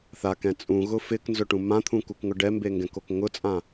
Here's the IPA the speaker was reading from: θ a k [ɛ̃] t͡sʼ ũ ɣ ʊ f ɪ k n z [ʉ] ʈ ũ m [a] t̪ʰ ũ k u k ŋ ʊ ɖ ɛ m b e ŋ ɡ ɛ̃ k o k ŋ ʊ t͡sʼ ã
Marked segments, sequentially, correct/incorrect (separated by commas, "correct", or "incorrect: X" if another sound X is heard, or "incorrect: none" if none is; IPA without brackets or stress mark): correct, incorrect: ʊ, incorrect: ã